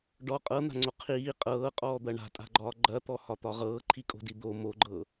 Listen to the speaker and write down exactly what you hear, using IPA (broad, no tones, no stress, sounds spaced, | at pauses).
ɖ ɔ qʼ ɤ n̪ a̤ ŋ͡ǀ o qʰ iː qʼ ɤː qʼ ɔː d̪ ɐ ɳ a̤ tʼ a̤ ɡ͡ǃ ɒː ɡ͡ǃ ɐ t̪ ɔ h ɒ t̪ ɒ ʁ ɤː ǃʰ i kʼ o̤ d i d̪ o m o ɡ͡ǃ ɤ